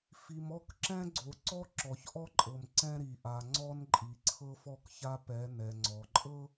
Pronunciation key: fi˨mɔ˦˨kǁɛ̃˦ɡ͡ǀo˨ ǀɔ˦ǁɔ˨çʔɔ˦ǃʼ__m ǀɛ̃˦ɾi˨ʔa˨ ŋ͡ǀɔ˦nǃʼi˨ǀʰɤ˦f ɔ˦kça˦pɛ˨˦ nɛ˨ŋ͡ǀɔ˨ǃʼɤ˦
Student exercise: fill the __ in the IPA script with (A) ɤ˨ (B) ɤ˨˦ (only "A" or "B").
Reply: A